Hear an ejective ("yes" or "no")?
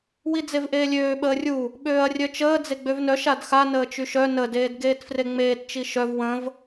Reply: no